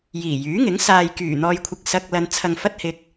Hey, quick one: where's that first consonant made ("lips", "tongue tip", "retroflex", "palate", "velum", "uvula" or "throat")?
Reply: palate